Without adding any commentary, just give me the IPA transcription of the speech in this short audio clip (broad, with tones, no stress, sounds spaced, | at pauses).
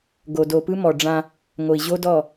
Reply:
ɡ o˨ d o˨ p ɯ˦ m ɔ˨ ɖ͡ʐ ã˦ | ŋ o˨ i̯ ʑ o˦ d ɔ˦˨